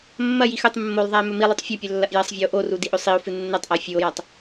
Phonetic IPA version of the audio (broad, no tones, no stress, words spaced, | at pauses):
mːɐjix ɵtˤ mːolˠðˤae̯ mɵmilˠʉtˤ fʲɐpʲɵ lːɐʔjɐsˤvʲɐo̯ ʔoru diʔɵsˤio̯fɨ nːɐtˤʔa fʲuo̯jatˤ